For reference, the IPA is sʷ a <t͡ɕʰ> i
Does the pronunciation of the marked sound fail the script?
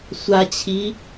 no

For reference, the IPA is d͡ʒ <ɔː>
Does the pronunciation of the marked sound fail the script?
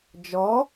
no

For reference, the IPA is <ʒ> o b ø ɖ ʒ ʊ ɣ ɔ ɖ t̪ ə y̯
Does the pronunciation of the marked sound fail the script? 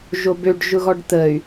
no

